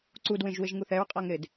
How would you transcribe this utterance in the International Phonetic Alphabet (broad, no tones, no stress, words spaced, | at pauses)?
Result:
ǀudwẽʒ wɪʒŋuθɛɹqʼaŋ ɾɪd